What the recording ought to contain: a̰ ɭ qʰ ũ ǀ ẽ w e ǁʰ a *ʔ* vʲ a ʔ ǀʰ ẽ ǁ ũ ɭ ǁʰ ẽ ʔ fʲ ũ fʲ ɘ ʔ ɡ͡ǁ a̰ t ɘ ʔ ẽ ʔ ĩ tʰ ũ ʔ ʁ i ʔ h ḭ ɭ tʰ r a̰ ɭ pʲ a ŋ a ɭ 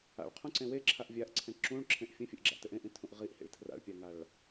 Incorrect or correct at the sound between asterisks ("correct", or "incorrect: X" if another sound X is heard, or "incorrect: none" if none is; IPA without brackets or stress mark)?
correct